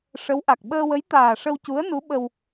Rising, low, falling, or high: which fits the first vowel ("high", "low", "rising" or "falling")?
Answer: rising